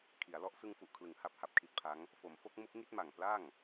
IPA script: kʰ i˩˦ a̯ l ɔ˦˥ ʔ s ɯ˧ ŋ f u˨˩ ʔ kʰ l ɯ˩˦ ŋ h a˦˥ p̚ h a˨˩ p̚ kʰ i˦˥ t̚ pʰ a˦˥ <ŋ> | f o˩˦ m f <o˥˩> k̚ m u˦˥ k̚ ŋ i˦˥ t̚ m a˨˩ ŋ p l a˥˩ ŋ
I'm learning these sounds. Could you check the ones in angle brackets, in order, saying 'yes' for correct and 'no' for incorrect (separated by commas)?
yes, no